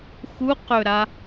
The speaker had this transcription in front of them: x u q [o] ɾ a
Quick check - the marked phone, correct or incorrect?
incorrect